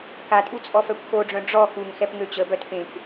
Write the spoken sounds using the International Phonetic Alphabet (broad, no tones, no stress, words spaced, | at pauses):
katʼu t͡sʼɔfœkʷxoɖ͡ʐœ̃ ɖ͡ʐɔ xuŋxɛp ŋøt͡ɕəbœt pẽkʷ